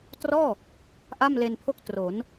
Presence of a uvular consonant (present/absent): absent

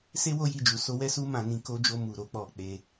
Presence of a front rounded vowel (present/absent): absent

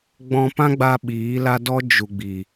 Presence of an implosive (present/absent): present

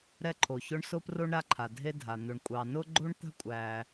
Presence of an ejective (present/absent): present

